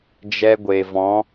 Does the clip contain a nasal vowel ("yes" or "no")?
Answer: yes